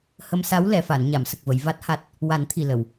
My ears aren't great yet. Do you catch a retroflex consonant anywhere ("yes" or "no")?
no